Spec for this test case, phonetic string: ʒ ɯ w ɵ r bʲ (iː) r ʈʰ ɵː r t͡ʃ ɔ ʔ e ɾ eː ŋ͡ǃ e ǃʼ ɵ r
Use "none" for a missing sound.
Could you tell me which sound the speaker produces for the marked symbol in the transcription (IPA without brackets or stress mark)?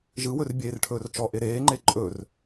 eː